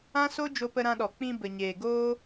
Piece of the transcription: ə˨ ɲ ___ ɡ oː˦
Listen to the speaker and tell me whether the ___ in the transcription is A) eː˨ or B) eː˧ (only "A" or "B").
A